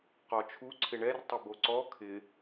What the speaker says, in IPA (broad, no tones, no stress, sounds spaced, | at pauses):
q ɔ t͡ʃʰ u ǀʰ ɪ ɳ ɛ r tˤ ɪ b o ǀ ɔ kʰ ɪ